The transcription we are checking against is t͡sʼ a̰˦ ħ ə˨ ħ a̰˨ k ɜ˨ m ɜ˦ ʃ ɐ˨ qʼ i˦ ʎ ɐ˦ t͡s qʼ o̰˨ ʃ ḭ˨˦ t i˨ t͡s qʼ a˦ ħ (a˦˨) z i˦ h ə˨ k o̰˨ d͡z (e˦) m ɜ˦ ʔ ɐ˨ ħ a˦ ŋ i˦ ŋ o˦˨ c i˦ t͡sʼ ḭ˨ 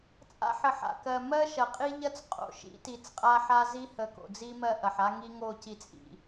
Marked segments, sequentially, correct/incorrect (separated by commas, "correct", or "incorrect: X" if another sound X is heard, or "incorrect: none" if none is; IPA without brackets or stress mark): incorrect: a˦, incorrect: i˦